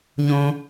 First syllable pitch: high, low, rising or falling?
high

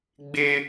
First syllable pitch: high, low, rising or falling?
high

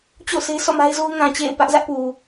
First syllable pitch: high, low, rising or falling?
falling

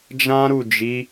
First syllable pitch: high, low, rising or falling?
high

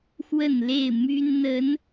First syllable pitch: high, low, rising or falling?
falling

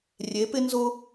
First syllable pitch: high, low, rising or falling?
rising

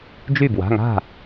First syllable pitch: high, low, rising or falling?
falling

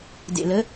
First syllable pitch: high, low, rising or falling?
low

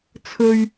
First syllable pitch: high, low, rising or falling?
high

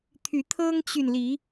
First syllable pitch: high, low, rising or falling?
rising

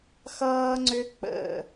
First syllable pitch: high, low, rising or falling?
high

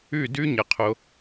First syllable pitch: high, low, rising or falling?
falling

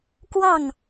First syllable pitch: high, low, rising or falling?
falling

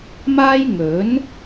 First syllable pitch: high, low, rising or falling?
high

